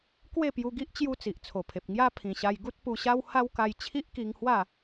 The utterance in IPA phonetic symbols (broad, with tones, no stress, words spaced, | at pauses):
kwe˥˧pju˧ɡi˦ʔ t͡ɕju˦t͡si˨ʔt͡sʰo˨˩pʰe˨p̚ ŋja˦ pʰĩ˨˩ɕa˧j ɡu˦t̚pu˧ɕa˦w ha˦wka˧j t͡ɕʰi˦ʔki˧ŋhwa˥˧